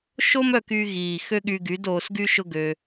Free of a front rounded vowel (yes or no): no